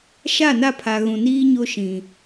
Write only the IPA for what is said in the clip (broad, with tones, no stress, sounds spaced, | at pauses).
ʃ a˦˨ n a˦˨ pʰ a˨ ɣ ũ˨ n iː˦ ɲ o˦ ʃ ĩ˨